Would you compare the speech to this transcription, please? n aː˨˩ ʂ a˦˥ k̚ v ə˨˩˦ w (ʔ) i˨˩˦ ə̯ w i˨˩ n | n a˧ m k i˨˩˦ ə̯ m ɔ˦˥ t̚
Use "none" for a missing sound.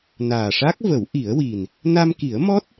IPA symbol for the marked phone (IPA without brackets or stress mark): ʔ